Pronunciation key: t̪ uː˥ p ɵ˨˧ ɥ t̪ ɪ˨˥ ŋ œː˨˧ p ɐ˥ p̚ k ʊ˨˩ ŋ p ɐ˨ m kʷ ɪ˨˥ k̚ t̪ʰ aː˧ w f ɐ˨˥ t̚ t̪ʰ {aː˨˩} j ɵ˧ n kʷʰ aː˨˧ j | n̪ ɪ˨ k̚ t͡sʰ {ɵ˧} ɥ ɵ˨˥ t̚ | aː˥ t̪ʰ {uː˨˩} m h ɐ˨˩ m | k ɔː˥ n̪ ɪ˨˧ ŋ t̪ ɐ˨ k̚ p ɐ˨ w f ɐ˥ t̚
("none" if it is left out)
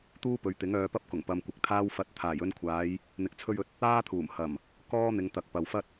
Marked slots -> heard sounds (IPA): aː˨˩, ɵ˧, uː˨˩

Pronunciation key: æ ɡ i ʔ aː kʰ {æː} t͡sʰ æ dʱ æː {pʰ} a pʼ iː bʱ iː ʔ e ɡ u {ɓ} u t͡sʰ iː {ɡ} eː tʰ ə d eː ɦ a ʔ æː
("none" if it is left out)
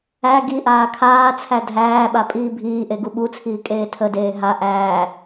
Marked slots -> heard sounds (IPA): aː, ɓ, ɓ, kʼ

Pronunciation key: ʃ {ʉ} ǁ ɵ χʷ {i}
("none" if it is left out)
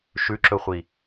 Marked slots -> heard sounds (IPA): ʉ, i

